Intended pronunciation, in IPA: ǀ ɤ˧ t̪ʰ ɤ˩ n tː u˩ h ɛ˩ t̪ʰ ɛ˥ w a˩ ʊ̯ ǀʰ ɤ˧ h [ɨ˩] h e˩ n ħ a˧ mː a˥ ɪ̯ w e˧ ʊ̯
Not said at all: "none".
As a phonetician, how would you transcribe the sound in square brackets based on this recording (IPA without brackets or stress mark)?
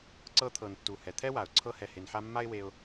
ɛ˩